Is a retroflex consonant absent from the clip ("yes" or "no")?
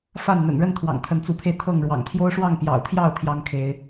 no